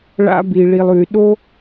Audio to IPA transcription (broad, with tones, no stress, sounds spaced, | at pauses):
ɭ a̰˧ b i˨ ɭ i˨ lˠ ʉ˨ y̯ ɗ o˦